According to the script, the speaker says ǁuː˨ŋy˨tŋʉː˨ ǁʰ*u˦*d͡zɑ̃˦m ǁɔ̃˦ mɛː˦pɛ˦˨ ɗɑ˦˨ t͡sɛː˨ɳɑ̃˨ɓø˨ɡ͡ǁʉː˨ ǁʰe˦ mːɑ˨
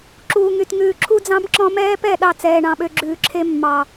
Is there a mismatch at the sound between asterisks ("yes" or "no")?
no